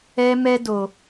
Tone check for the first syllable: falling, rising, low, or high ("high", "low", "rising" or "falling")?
high